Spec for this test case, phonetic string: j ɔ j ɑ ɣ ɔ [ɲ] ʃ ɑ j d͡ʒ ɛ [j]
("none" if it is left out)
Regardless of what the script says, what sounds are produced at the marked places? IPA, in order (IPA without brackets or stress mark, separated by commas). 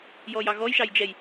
j, j